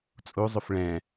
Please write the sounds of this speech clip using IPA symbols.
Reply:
t͡sʼ u zˤ u f ɭ ɛ̃

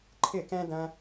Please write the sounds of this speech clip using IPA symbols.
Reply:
ǃʰ ɪ˥˨ k ɛ̃˥ d ɐ̃˥

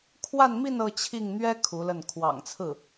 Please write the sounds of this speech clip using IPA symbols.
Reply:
kʰ w a˥˧ n m i˥˧ n ɤ˥˧ t͡ɕʰ i˥˩ ŋ n̪ ɥ ɛ˥ kʰ u˧˥ l ə˥˩ n kʰ w ɑ̰˨˩ ŋ t͡sʰ ɹ̩˥˩

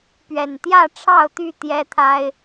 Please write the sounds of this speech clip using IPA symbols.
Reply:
p ɥ ɛ˨˩ n t̪ j ä˥˨ ʈ͡ʂʰ ɑ˥˨ ʊ̯ t̪ y˥˨ t̪ j ɛ˦ t̪ʰ a˦ ɪ̯

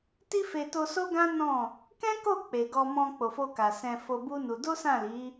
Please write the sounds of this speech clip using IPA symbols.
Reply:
t i˦ f e˧ t o˧ s o˦ ɡ ã˦ n ɔ̃˦˨ | k ɛ̃˦ k o˦˨ k͡p e˨ ɡ ɔ˧ m ɔ̃˧ k͡p o˨ f o˧ k a˨ s ɛ̃˧ f o˧ b u˦ n u˧ d o˦ s ã˦˨ l i˨˦

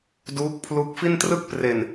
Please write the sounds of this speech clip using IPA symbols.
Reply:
d uː˦˥ k̚ pʰ l u˦˥ k̚ f i˥˩ n t r ɯ˥˩ k̚ p r e˨˩ n

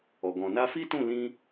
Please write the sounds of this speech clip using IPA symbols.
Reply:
ɔ˨ ɡ ɔ̃˨ n a˧ f i˦ t ũ˦˨ l ĩ˧

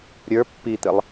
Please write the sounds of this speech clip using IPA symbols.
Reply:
ɾʲ ə˞ pː i t̪ ɘ lˠ

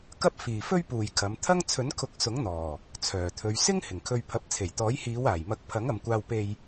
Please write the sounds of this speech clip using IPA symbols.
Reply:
k ɐ˥ p̚ f iː˨ f ɵ˥ ɥ p uː˨ j kʰ ɐ˨˧ m t̪ʰ ɐ˥ ŋ t͡sʰ ɵ˨˥ n kʰ ʊ˨˥ k̚ s ʊ˨˥ ŋ n̪ ɔː˨˩ | t͡sʰ œː˨˩ t̪ʰ ɵ˨˧ ɥ s ɪ˥ ŋ h ɪ˨˩ ŋ kʰ ɵ˧ ɥ pʰ ɐ˨˥ p̚ t͡sʰ e˨˩ j t̪ ɔː˨˥ j h iː˨˧ w aː˨˩ j m ɐ˨˥ k̚ pʰ ɐ˨˥ ŋ ɐ˨˧ m kʷ aː˧ w p e˨ j

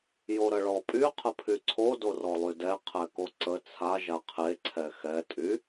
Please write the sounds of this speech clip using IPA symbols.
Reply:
j o ɾ ə ɭ ɔ pʼ y qʰ ə pʰ y ǀʰ o d o r ɔ lˠ y d ɛ qʰ ɛ k o ǀ ə t͡sʰ a ʒ a qʰ e ǀʰ ɛ x ɛ tʼ y

